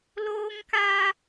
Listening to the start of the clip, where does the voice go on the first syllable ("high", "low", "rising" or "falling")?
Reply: high